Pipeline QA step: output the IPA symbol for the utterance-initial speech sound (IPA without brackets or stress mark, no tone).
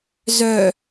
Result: z